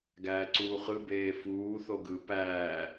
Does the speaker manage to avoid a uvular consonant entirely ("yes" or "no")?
no